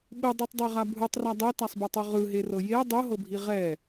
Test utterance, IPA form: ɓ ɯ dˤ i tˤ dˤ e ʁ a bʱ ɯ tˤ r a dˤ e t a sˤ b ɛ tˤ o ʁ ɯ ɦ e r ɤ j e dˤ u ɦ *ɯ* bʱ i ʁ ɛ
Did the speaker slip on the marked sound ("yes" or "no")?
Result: yes